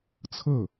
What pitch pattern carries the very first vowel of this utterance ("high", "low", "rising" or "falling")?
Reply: falling